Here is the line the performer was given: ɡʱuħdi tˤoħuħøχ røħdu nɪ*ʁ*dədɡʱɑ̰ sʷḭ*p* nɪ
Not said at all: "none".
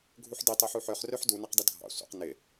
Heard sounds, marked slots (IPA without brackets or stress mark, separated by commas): q, q